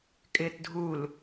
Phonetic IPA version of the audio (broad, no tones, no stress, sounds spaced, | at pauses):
kʼ ɪː t dʱ u l